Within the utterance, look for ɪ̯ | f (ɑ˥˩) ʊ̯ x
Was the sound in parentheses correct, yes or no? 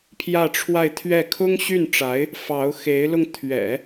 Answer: no